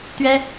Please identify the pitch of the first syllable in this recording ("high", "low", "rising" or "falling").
high